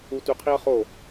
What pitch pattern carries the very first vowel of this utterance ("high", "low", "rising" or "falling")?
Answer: high